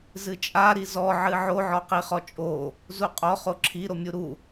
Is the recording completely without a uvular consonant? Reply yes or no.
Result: no